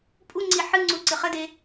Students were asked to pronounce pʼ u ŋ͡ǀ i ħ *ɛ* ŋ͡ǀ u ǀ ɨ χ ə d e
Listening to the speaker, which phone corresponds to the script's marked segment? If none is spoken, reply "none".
ɨ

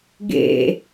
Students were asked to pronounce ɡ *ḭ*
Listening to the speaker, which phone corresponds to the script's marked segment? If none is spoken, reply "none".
ḛ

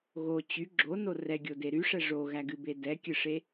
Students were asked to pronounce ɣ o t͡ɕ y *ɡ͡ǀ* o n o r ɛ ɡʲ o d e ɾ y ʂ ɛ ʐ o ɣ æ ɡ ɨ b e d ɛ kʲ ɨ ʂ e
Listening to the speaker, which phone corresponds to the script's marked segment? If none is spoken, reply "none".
ɡ͡ǁ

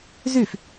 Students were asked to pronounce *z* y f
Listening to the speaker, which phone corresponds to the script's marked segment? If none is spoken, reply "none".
z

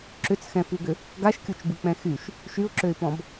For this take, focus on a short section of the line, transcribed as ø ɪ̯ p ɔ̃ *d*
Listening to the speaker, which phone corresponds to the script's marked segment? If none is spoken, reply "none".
b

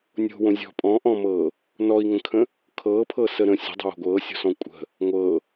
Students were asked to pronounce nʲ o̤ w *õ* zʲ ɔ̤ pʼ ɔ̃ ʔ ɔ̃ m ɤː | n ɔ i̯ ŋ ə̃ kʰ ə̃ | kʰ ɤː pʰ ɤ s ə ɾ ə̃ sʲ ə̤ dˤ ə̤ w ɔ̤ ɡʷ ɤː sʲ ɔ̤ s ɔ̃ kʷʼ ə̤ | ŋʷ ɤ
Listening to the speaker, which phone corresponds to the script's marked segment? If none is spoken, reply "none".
õ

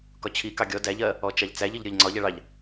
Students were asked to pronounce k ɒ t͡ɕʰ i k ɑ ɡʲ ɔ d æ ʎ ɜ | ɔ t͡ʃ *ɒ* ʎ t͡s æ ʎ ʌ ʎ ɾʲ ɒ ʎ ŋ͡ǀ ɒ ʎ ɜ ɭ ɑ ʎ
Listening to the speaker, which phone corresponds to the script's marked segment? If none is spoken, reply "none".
ɑ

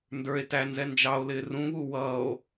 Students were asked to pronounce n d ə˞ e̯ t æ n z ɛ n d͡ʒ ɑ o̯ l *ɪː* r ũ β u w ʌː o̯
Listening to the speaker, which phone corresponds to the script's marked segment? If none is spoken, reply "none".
ɪː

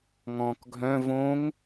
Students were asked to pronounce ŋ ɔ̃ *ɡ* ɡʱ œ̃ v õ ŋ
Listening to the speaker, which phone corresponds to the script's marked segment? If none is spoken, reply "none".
k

